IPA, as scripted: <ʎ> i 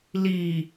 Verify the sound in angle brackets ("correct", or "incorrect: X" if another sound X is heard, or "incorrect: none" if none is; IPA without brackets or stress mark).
incorrect: l